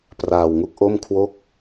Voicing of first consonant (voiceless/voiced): voiceless